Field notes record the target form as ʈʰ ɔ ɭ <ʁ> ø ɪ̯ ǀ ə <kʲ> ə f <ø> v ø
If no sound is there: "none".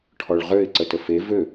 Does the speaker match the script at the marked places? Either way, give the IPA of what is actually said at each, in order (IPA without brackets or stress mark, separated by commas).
ʁ, t, e